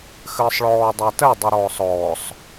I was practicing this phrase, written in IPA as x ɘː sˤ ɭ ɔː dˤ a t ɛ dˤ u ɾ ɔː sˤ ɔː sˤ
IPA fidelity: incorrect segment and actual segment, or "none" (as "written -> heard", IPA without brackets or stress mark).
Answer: none